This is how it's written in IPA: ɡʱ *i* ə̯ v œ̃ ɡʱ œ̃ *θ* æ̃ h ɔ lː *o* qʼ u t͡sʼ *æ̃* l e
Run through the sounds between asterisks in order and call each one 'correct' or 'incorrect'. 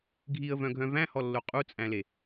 correct, incorrect: v, correct, correct

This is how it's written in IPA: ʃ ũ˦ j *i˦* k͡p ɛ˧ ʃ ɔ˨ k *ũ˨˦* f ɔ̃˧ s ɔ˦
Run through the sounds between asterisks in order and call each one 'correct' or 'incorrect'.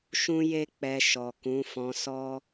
incorrect: e˦, correct

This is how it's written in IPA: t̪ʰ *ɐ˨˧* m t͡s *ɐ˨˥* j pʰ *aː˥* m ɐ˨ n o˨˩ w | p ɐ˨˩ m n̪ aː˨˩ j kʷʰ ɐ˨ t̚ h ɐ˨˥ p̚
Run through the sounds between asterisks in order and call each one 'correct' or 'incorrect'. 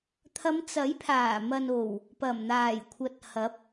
correct, correct, incorrect: aː˨˩

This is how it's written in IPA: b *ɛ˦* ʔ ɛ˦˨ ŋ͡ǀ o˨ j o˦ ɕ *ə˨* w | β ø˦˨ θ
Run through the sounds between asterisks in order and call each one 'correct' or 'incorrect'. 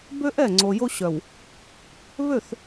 incorrect: ø˦, incorrect: œ˨

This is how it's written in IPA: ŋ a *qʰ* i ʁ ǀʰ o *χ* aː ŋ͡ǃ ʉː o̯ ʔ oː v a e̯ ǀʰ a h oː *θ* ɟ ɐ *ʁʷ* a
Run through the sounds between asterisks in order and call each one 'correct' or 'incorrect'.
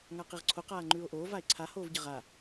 incorrect: q, incorrect: q, incorrect: v, incorrect: ʁ

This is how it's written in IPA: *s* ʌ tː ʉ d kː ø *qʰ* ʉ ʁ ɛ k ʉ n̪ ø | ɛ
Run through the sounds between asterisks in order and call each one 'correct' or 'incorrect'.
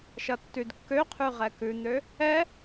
incorrect: ʃ, correct

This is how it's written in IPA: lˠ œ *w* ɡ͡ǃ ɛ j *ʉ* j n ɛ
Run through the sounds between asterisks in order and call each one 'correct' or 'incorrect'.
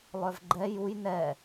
incorrect: v, incorrect: u

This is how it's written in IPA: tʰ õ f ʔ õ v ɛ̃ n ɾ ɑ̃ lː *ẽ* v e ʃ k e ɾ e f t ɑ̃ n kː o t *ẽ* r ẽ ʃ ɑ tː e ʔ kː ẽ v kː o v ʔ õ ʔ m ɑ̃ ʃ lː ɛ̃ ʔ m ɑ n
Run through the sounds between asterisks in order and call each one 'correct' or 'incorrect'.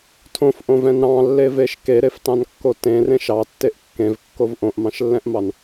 incorrect: e, correct

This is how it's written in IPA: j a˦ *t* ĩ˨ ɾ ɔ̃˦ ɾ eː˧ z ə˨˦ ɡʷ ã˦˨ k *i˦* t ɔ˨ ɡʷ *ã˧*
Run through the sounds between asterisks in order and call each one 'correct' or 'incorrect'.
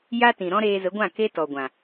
correct, incorrect: e˦, incorrect: ã˨

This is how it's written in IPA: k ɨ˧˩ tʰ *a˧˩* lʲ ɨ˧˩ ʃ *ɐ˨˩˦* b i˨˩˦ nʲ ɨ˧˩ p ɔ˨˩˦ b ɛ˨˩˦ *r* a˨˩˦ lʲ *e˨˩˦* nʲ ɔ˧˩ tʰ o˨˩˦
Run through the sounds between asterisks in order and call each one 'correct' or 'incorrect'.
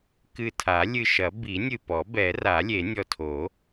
incorrect: a˨˩˦, correct, correct, correct

